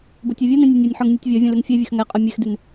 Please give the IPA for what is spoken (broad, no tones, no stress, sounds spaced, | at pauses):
b o tʲ u vʲ u n ĩ nʲ e nʲ ɔ nʲ ħ œ ŋ nʲ u tʲ vʲ ɔ vʲ ə̃ l y ŋ fʲ e vʲ ø x ŋ ɛ qʼ œ mʲ e x d y n